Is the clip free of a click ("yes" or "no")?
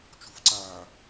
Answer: no